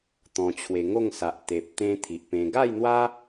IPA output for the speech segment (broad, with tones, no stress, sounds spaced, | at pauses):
t̪ ɔ̃˧ t͡ɕʰ w e˧ ŋ o˥˧ ŋ s a˨ ʔ t̪ e˨ p̚ t̪ ẽ˧ t̪ʰ i˨ ʔ p ẽ˧ ɡ a˥˧ j n̪ w a˦